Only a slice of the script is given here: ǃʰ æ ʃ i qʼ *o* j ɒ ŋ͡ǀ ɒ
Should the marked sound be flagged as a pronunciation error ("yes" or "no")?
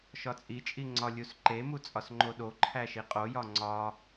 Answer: no